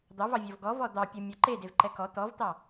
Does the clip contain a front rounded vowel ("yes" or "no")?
no